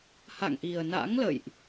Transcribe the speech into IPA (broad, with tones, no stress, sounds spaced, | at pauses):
h a̰˧˨ ŋ ʔ i˨˩ ə̯ n a̰˧˥ ŋ l ə̰˧˨ j ʔ